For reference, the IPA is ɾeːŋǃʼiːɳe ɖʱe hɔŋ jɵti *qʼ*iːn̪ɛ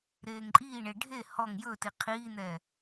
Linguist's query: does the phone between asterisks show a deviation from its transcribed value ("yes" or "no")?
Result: yes